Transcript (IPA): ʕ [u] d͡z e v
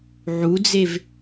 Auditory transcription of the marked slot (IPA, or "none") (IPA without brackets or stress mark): u